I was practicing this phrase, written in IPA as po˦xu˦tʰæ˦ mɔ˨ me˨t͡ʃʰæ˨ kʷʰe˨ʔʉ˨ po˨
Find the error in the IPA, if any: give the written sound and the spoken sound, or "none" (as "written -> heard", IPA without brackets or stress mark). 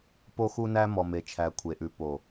tʰ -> n